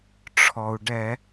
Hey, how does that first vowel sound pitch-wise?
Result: low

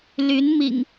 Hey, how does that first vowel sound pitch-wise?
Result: rising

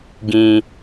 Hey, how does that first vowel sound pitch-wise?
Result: low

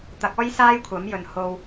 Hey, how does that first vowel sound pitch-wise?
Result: rising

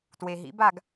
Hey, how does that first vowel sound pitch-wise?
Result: low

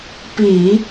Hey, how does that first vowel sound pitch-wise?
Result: low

